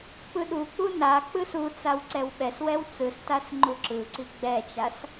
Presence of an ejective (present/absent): absent